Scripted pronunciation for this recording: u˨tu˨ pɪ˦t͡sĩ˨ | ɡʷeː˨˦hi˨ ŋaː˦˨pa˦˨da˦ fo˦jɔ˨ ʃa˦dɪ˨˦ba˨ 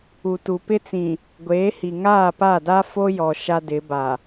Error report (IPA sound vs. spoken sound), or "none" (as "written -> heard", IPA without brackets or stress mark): none